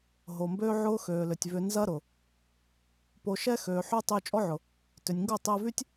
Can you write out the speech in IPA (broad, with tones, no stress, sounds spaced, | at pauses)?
ɦ o˨ m b øː˦ ʕ ʊː˦ x øː˨ l ʏ˨ tʲ v ʏ˧ n z ɐ˦ ɾ ʊ˨ | p o˧ ʃ ɛ˦ x øː˨ ħ ø˦ tˤ yː˧ t͡ʃʼ ɔ˦ ʕ ʊ˨ | t ʏ˨ nʲ ŋ ɡ o˦˨ tˤ ɪː˧ v y˦ tʲ